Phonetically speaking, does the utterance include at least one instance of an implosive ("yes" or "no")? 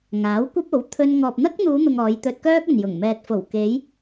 no